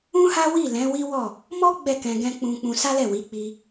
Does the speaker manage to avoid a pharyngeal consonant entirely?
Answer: yes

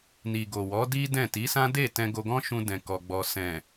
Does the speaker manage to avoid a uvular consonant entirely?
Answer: yes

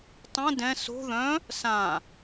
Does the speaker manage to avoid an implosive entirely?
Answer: yes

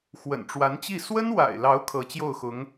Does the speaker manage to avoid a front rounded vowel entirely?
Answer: yes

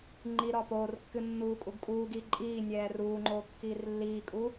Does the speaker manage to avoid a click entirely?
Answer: no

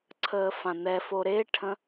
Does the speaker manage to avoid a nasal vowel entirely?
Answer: no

